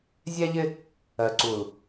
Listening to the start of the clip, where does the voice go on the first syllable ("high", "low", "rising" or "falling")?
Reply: high